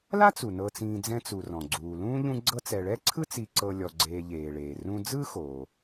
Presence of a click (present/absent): present